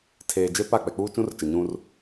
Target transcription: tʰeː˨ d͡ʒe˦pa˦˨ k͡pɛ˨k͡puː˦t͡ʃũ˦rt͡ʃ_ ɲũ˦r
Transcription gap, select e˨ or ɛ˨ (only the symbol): ɛ˨